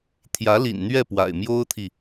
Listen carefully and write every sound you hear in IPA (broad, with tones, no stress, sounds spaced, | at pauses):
t̪ʰ j ä˧˥ l ḭ˨˩ n n̪ ɥ ɛ˥˩ p w a̰˨˩ ɪ̯ m j o˥ ʊ̯ t̪ʰ i˨